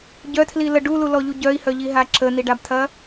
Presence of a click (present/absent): present